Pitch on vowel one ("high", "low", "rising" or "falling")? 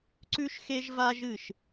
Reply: high